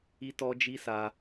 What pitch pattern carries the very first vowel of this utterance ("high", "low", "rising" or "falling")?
high